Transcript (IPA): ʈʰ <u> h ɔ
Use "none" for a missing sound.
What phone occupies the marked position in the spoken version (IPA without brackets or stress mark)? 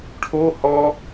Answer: o